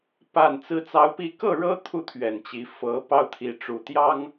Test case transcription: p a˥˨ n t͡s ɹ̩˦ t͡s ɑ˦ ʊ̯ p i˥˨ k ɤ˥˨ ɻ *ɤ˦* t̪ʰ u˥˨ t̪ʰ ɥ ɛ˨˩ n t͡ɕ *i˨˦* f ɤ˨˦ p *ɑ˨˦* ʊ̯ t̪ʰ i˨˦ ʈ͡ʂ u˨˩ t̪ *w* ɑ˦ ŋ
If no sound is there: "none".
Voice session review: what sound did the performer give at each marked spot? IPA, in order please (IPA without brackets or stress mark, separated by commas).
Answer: ɤ˦, i˨˦, ɑ˦, j